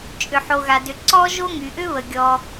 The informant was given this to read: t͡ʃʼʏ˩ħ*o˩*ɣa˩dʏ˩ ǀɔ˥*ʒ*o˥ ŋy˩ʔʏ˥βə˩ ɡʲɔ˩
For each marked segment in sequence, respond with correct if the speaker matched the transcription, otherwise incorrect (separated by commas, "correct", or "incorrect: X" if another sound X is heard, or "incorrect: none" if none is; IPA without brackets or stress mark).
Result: correct, correct